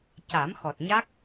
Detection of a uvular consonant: absent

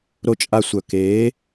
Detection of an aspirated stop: absent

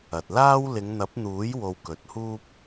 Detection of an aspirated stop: absent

